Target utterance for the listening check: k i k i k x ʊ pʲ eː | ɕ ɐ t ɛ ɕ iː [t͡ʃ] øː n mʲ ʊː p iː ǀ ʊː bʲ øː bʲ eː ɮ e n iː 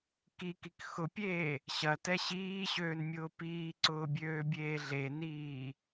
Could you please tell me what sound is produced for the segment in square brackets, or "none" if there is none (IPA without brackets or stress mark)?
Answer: ɕ